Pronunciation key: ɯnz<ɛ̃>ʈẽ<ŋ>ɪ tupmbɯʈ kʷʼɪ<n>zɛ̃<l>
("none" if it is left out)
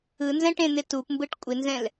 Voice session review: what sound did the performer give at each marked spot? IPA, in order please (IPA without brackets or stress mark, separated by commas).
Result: ɛ̃, n̪, n, l